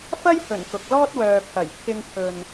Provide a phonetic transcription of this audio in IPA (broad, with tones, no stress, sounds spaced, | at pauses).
f ɐ˥ j h ɵ˨˩ n k ʊ˨ k̚ l ɔː˥ t̚ w œː˨ pʰ ɐ˨˩ j pʰ ɪ˧ ŋ pʰ ɵ˨ n